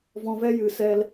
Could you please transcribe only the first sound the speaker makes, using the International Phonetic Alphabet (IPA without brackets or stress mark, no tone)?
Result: v